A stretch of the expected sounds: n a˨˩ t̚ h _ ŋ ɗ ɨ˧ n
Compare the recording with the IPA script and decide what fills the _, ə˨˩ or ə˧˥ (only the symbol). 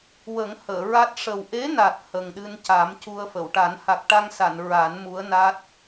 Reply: ə˨˩